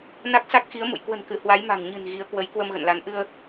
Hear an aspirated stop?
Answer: no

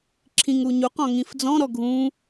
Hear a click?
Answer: yes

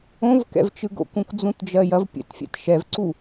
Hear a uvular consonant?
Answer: no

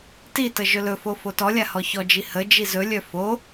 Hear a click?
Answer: no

